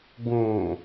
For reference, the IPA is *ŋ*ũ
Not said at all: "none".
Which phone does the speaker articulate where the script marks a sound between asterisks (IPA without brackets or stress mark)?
ɡ